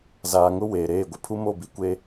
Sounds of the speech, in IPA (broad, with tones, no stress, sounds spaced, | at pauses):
z aː˨ ŋ ʊ˦ w eː˨ ɾ eː˦˨ ɡʷ ɪ˦ pʰ u˦ m o˦˨ b i˨ kʷ e˦